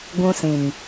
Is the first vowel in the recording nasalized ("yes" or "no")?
yes